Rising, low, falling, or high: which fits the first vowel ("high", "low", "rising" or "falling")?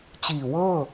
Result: low